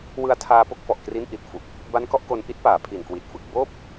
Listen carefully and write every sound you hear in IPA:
w ɯ˧ a̯ tʰ aː˧ p o˦˥ k̚ f ɔ˨˩ ʔ k r i˦˥ n ʔ i˨˩ t̚ f u˨˩ k̚ | b a˦˥ n k ɔ˦˥ ʔ k o˧ n ʔ i˦˥ t̚ p aː˨˩ pʰ i˨˩ n k w i˨˩ t̚ f ɯ˨˩ k̚ b oː˥˩ p̚

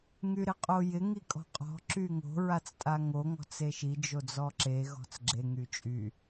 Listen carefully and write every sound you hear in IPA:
ŋ y ɾ ɪ qʼ o j ɪ ŋ i kʼ ɔ̤ qʼ ɔ̤ ǁ y ŋ o̤ ɹ a t͡s tʼ a ŋ o ŋ ɔ̤ t͡s e ʃ i d͡ʒ o d͡z ɔ ǁ e ɣ ɔ̤ t͡s ɡ͡ǁ e ŋ y t͡ʃʼ y

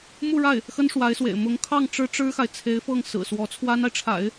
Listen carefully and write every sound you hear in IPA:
m u˥˧ ɻ a˥˩ ɪ̯ | x ə˥ n ʂ w a˧˥ ɪ̯ s w ḛ˨˩ ɪ̯ m ʊ˧˥ ŋ kʰ ɑ˥˩ ŋ ʈ͡ʂ ɻ̩˥ ʈ͡ʂ ɻ̩˥ x a˨ ɪ̯ t͡sʰ e˧˥ ɪ̯ f ɤ˥˩ ŋ s ɹ̩˨˩ s w ɔ˧˥ t͡sʰ w a˥ n a˨ ɪ̯ ʈ͡ʂʰ a̰˨˩˦ ɪ̯

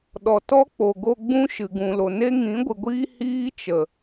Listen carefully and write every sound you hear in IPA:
ɗ ɔ˨ t ɔ˦ k͡p o˨ ɡ o˧ ɡ͡b ũ˦ ʃ ɨ˨ ɡ ũ˨ l o˨ n e˦ ŋ ĩ˨˦ ɡʷ ɨ˨ ɡʷ iː˦ h iː˦ t͡ʃ ə˨

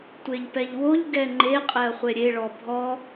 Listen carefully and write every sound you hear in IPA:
tʷ e ʎ p ɛ ʎ w o ʎ ɡ ɛ ŋ͡ǃ e qʼ e ɐ̯ χʷ e ɾʲ e ɭ ɔ bʱ ɔ

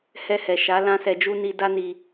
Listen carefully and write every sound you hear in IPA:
h ɛ˧ h ɛ˨ ʃ a˨˦ l ã˦ s ɛ˧ d͡ʒ u˦ n i˧ d a˦ n i˧

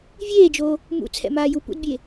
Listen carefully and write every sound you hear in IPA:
vʲ eː d͡ʒ oː | m ṵ t͡sʰ ɛ̰ m aː j u p ṵ d bʲ eː

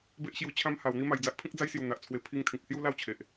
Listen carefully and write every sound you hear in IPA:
b e˦ ʔ ɕ j u˧ t͡ɕʰ ã˦ m h a˨˩ w n̪ i˦ m a˨˩ j d͡z a˦ ʔ pʰ ĩ˦ k̚ d͡z a˦ j s j u˨˩ n̪ a˨ ʔ t͡sʰ w e˧ pʰ i˧ ŋ t̪ʰ ĩ˨ k̚ s j u˦ l a˥˧ w t͡ɕʰ e˨ ʔ

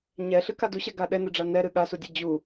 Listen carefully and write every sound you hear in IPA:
ɲ ɛ ɬ ɨ k a d u ɕ ɛ ɡ a ɗ ɛ n ɨ ɖ͡ʐ a n ɛ ɾ ɨ ɠ a s u dʲ ɨ d͡ʑ u

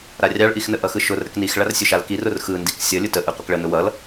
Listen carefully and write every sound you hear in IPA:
ɾ a rʲ ɑ ɭ ʔ i x n ə ʔ ʌ x ɯ ʃ ʊ r ɾ ə k n i x ɭ a r sʲ ʊ ʃ a l k i r ʊ r x ɯ n d i k sʲ ʌ lʲ ʊ t ə ʔ ɯ qʷ ə k ɭ ə n ʊ w ʌ l

